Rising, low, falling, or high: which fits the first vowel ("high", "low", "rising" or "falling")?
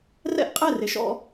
falling